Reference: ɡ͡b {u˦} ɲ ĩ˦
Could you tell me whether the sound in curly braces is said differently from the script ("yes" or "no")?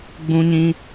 yes